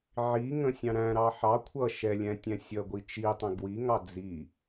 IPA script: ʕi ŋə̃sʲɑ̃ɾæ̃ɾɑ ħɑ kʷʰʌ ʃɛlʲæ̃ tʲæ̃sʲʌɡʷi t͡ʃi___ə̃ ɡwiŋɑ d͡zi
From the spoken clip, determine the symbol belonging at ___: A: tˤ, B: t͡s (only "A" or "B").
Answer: A